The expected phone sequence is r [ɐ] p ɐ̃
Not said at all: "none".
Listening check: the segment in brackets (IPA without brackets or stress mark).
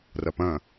ɐ